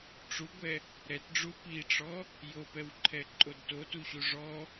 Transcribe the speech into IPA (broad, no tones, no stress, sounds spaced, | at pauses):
ʈ͡ʂ u ɡʷ ɛ | ɾ ɛ t ɖ͡ʐ u p i ʈ͡ʂ ɔ | j o p ɛ w ǃʰ ɛ ǃʼ o d t o t u ɕ u ʐ ɔ